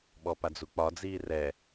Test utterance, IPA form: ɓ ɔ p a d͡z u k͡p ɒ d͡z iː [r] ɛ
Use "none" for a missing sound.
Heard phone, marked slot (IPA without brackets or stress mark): r